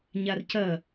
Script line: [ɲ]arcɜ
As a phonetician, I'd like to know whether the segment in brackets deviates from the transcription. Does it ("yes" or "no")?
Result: no